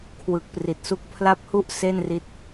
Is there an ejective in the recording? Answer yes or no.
no